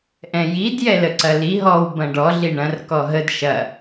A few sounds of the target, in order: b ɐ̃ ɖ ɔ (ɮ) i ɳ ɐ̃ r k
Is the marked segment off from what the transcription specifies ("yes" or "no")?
no